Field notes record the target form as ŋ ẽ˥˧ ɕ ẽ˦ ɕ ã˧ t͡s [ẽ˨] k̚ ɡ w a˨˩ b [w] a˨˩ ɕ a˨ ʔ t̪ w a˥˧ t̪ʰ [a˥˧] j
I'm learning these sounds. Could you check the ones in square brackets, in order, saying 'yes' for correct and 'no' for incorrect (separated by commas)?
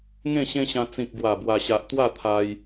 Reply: no, yes, no